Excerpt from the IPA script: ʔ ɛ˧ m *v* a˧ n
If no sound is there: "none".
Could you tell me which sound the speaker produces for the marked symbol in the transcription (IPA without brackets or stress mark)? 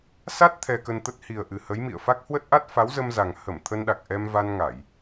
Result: v